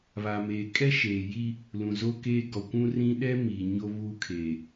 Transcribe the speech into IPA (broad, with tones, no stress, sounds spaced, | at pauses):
β a˨ m eː˨ kʼ ɛ˦ ʃ eː˨ j i˦ | l ũ˨ z o˦ k eː˦ ɡ ɔ˨ kʷ ũ˦ r ĩ˦ ɗ ɛ˦ m iː˨ ɲ o˦ β u˦ kʰ eː˨